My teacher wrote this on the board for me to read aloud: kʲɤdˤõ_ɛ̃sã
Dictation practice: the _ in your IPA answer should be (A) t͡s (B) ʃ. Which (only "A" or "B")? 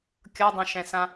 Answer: B